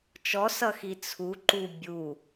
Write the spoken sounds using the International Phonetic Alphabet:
t͡ʃ ɔ s ʌ x i t͡sʰ u ǃ u bʲ u

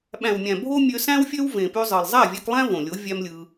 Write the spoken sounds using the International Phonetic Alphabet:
ɓ æ̃˨ w mʲ æ̃˨ bʱ o˦ mʲ ø˧ s æ̃˦ w fʲ ø˦ w v ẽ˨ p y˧ zˤ ɯ˨ lˠ zˤ æ˦˨ vʲ æ˧ k lˠ æ̃˦ v õ˨ lʲ o˨˦ vʲ æ˦ m lʲ ɯ˧

